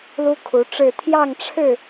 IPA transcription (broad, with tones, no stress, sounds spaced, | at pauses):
l u˦ kʰ u˨˦ ʈ͡ʂ ɻ̩˥˨ t̪ʰ j ɑ˥˨ ŋ ʈ͡ʂʰ ɻ̩˥˨